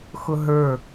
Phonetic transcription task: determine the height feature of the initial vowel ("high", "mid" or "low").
high